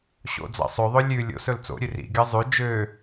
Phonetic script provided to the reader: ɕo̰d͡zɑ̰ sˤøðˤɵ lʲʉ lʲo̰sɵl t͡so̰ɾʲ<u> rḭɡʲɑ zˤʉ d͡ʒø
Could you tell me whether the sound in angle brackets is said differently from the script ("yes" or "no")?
yes